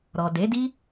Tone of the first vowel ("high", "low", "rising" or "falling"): low